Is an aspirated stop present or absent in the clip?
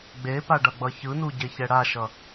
absent